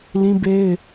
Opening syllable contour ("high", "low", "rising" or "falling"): high